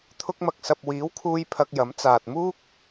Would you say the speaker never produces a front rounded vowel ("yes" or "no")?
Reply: yes